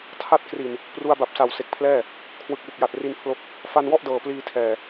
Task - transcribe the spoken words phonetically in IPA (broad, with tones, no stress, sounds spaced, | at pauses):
tʰ a˦˥ t̚ k r i˨˩ n | p r u˧ a̯ b a˨˩ p̚ s a˨˩ w s e˨˩ k̚ pʰ l ɛː˥˩ | kʰ w ɯ˨˩ k̚ w u˨˩ k̚ j a˨˩ t̚ r i˧ n pʰ l o˦˥ k̚ | f a˧ n w ɔ˥˩ ʔ d ɤː˨˩ p l iː˧ tʰ ɛː˨˩